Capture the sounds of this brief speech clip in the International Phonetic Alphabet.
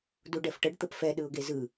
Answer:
duɖɛfʈəɖ t̪əpfɛ ɗɯʊ̯ɡezɯ

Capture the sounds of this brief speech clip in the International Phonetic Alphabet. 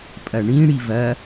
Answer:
pʼɐɳĩ ɽivɐ

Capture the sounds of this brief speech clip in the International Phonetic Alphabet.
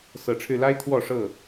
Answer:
sɤ˨˦ʈ͡ʂʰɻ̩˧la˦ɪ̯ t̪ʰwɔ˥˨ʂɤ˥˨

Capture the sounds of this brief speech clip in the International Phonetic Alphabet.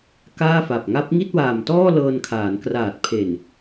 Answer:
kaː˥˩fa˨˩p̚ ŋa˦˥p̚ŋi˥˩t̚waː˨˩mtɔː˥˩ lɤː˧n kʰaː˩˦nkraː˨˩t̚pʰe˨˩n

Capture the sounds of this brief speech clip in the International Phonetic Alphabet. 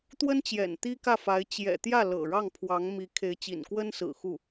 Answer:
t̪wə˥nt͡ɕjɛ̰˨˩n t̪i˥kä˥˩fa˧˥ɪ̯ t͡ɕjɛ̰˨˩t̪jä˥˩ lɤ̰˨˩ɻɑ˥˩ŋpʰwɑ˧˥ŋmi˧˥ kʰe˧˥ɪ̯ t͡ɕḭ˨˩nkwə˥nsɹ̩˨˩ xu˥˩

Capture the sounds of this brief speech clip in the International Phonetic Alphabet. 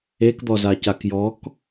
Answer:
ekd̪ɔza cakjɔk

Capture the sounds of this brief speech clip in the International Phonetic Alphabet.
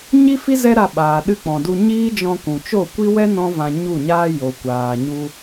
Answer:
ɲi˦fi˦ zɛ˦ɾa˧ɓaː˨ ɗɨ˧k͡pɔ̃˨ du˧ ɲiː˦d͡ʒɔ̃˧kũ˨t͡ʃo˦˨ kʷi˦wɛ˦ nɔ̃˦ vã˧ɲu˦˨ɲaː˦ jo˨kʷaː˨ ɲu˧

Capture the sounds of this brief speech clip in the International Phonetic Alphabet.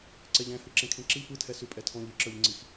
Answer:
ǀɛʎɛ̃ hɯǁẽkʰẽǁi pɯtʰɛ sʉpʼɛtʰɔ̃ʎ ɯǁə˞ʎŋ͡ǀix

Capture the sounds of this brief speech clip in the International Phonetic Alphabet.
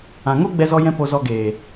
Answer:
ã˨ŋo˦ ɡ͡bɛ˦zɔ˦jɛ̃˦ po˧ zɔ˧ɡeː˨

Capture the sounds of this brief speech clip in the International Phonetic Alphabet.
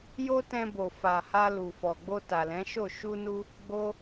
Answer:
jo˧ tɛ̃˧bo˨ fa˨ha˧ lu˨fɔ˨ɡ͡bo˧ ta˨lɛ̃˨˦ʃo˦˨ ʃu˧nu˧ | ɡ͡bo˦

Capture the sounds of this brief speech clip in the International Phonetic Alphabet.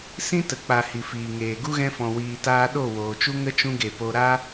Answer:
sĩ˦tə˨k͡pa˨ hi˨fiː˨ŋeː˨ ɡu˦ɣɛ̃˧fɔ̃˨ wiː˨taː˧ɗo˦˨ woː˨t͡ʃu˦ŋə˦ t͡ʃũ˦ɡe˨po˧ ɾa˦

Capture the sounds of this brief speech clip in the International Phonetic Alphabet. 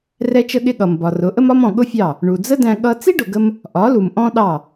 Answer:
rɛ˧t͡ʃə˧ɠɪ˧ ɠʌ˨mbɒ˨rʊ˨˦ ʔə˦mɒ˦mɔ̃˨ ɠʊ˦fʲɑ˦˨ | ɳu˨d͡zə˦dæ̃˧ ɠʌ˦ t͡si˦ɖʊ˨ɡə˧m | ʔɒ˨˦lu˨m ʔɔ̃˦ɗɑ˦˨

